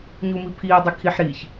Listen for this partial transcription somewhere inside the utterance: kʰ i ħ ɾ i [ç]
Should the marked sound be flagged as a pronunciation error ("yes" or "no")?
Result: no